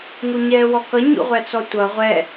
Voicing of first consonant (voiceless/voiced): voiced